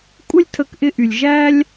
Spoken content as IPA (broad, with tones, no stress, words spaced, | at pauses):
kʷʼɪ˦lʲtʰə˧kʔɪ˧ʔy˨lʲ ʒæ˦lʲ